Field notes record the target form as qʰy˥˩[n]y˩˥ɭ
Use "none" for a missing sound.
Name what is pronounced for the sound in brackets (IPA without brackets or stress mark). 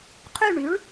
ɳ